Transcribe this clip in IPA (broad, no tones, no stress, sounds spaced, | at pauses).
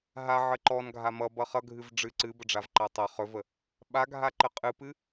ɦ a ʕ ə ǃ ɔ n ɡʱ a m ʌ b ʌ χ ʌ ɡʱ ɨ v ɖ͡ʐ ɨ ǀ ɨ b ə ɖ͡ʐ a v ǃ a tˤ ʌ χ ɵ v ə | ɓ a ɡʱ a ǃ ə qʼ ɨ p ɨ